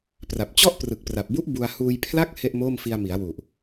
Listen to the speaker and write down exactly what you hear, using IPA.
p r a˨˩ p̚ t͡ɕ ɔ˥˩ ʔ p r ɯ˨˩ k̚ p r a˨˩ p̚ b u˦˥ ʔ b u˧ a̯ h uː˧ j pʰ l a˥˩ k̚ h e˥˩ ʔ m oː˥˩ m f i˧ a̯ m i˩˦ a̯ w u˨˩ ʔ

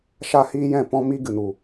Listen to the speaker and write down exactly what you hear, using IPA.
ʃ a˦ h iː˦ j ɛ̃˦˨ p ɔ̃˦ m i˦ ɡ ɨ˨ n u˨

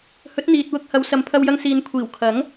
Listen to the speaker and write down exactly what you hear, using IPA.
h ɵ˨˥ t̚ n̪ iː˨ t̚ w ʊ˧ k̚ h ɐ˨˧ w s ɐ˨ m pʰ ɐ˧ w j ɐ˧ ŋ s iː˨ n kʷʰ iː˨˩ w kʰ ɐ˨˥ ŋ

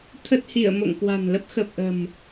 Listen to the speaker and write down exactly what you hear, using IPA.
t̪ʰ ə˦˥ t̚ h i˧˩ ə̯ m o̰˧˨ ŋ k w a̤˨˩ n l ə˦˥ p̚ x ə˨˩ p̚ ʔ ə̤˨˩ m

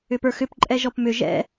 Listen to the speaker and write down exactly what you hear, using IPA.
ʏ p ə˞ x ʏ p ǃʼ ɛ ʒ ɔ p m ʏ ʒ ɛ̰

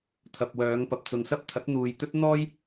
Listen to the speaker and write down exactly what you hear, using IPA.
t̪ʰ ɐ˨ p̚ w œː˨˧ ŋ p ɐ˨ p̚ t͡s ʊ˨ ŋ s ɐ˥ p̚ t̪ʰ ɐ˨˥ t̚ n̪ uː˨ j t̪ ɵ˥ t̚ n̪ ɔː˥ j

